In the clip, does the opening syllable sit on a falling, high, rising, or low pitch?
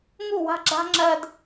falling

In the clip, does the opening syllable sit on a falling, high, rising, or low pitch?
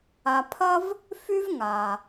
low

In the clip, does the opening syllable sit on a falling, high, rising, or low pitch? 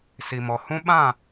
low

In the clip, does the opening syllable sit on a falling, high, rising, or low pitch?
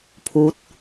rising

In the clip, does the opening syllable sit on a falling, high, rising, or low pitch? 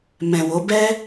low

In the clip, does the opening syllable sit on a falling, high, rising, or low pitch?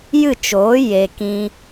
falling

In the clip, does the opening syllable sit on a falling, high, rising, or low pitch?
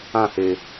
falling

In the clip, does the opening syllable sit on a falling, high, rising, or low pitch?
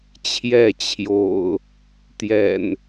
falling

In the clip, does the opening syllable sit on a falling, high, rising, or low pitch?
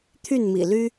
falling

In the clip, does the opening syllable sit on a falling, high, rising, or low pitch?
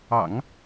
low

